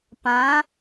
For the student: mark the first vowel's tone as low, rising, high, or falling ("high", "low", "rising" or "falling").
rising